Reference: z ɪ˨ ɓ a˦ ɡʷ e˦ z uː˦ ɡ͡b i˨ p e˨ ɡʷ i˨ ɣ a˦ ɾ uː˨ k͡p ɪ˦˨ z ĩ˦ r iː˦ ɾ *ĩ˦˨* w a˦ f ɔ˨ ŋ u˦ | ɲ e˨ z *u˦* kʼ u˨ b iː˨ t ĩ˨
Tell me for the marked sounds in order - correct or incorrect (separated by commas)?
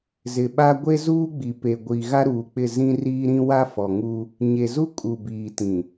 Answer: incorrect, correct